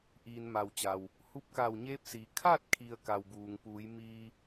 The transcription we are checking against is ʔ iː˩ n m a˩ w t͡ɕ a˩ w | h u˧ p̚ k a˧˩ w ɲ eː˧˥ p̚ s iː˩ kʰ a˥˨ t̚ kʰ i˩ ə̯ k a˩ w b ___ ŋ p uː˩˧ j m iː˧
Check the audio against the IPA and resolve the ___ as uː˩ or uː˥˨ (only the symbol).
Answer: uː˩